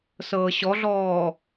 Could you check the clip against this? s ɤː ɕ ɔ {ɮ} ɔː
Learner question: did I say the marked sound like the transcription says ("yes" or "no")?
yes